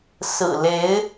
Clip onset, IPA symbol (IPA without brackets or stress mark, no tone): s